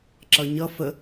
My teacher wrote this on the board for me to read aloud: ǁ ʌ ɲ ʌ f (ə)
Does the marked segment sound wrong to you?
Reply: no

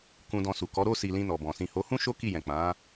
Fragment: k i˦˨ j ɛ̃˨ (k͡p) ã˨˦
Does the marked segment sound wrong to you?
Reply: no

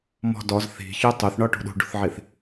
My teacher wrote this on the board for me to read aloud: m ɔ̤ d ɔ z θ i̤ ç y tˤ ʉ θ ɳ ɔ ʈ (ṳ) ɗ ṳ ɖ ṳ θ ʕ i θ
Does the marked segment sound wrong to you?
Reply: no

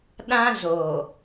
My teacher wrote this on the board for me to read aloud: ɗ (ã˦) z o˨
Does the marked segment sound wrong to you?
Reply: no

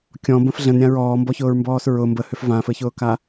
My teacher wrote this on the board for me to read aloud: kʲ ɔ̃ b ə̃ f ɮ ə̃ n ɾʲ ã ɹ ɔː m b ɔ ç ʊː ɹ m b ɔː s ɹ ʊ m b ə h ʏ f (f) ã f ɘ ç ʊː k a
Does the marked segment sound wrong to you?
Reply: yes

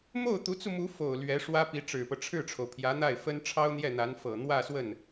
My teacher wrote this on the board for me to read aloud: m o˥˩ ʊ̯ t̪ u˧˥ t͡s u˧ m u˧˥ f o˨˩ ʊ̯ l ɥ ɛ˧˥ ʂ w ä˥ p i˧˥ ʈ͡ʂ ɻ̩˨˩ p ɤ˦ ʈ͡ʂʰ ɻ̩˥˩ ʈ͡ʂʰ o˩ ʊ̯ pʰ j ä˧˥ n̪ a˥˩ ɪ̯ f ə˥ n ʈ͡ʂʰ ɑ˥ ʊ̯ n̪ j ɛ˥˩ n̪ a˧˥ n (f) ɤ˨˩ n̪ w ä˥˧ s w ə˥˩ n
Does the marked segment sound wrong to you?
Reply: no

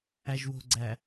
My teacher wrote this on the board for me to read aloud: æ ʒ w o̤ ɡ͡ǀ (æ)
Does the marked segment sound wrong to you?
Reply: no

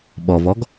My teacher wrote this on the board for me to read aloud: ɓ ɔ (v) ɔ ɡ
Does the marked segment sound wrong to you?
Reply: no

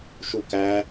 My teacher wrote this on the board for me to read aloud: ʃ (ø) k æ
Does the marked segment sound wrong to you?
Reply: yes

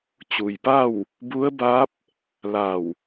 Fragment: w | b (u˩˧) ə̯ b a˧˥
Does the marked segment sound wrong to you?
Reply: yes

